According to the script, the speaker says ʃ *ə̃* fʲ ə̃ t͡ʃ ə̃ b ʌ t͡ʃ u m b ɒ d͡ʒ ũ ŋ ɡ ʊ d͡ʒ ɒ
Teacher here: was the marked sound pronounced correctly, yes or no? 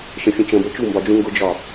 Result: yes